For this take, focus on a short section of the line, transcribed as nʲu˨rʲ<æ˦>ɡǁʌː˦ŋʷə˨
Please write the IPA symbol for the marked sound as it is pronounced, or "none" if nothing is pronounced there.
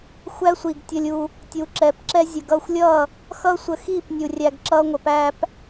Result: æ˧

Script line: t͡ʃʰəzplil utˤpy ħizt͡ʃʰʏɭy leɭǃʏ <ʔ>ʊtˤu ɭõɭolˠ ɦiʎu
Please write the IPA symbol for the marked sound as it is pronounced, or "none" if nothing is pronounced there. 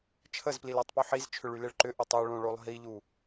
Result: ʔ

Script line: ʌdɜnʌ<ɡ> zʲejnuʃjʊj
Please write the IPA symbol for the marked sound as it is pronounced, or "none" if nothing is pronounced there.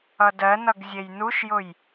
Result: ɡ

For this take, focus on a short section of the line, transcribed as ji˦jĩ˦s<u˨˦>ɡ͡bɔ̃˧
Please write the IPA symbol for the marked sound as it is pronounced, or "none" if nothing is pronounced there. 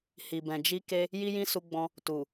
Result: u˧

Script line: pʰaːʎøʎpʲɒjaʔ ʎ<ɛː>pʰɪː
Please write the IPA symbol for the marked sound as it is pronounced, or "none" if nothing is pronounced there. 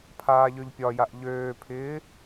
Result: øː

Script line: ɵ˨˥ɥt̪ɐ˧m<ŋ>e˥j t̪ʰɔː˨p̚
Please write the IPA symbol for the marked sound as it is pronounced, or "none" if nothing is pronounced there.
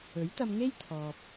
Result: ŋ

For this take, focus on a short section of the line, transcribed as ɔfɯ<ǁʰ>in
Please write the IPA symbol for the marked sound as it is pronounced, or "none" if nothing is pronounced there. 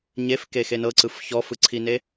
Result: ǀʰ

